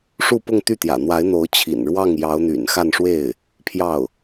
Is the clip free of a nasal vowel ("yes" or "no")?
yes